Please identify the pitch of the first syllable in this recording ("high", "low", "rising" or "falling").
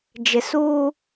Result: low